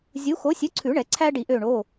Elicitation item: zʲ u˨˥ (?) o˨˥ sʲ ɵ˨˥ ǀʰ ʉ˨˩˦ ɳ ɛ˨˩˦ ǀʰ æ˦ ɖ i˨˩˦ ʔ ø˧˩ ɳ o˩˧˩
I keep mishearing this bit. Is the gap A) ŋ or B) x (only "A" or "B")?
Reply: B